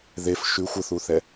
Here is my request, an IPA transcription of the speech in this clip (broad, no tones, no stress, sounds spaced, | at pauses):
ð e f ʃ ʉ xʷ ə θ u θ ɛ